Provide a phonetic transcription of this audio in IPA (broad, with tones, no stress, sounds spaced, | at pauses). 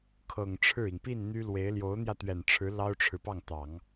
kʰ ɤ˨˩ ŋ ʈ͡ʂʰ ɻ̩˥˩ i˩ ŋ p i˥˩ n n̪ y˥ l w e˧˥ ɪ̯ l j o˧˥ ʊ̯ n̪ j ä˧ t̪ ɥ ɛ˨˩ n ʈ͡ʂʰ ɻ̩˧˥ l ɑ˥ ʊ̯ ʈ͡ʂʰ ɻ̩˨ p ɑ˥˩ ŋ t̪ ɑ˨˩˦ ŋ